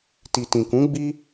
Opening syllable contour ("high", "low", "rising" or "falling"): low